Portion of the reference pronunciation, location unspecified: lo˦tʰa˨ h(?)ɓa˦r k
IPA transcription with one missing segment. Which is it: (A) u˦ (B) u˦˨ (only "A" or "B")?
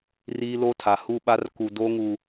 B